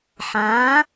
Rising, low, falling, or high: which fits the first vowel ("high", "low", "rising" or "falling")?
rising